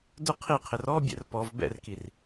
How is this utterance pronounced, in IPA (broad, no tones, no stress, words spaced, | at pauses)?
dʊ qʰiqʰɪr ɔbʲɛ̰r pɔv bɛ̰rkir